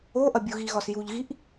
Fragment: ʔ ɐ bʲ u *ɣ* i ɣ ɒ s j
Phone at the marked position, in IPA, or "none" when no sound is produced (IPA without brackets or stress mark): ɣ